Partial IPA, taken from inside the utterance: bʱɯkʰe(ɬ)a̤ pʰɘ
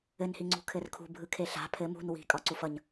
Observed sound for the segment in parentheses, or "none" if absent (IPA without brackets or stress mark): ɬ